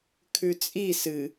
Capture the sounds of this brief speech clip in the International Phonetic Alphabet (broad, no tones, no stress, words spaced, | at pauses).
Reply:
kʰʉt͡sʼi sɨ